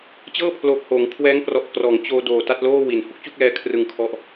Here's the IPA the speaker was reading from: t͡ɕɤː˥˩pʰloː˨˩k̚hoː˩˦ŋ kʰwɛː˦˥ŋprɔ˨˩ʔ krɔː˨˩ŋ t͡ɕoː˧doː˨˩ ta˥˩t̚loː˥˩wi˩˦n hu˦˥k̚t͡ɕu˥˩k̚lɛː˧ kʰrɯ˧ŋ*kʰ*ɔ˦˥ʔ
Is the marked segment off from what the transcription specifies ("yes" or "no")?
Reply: no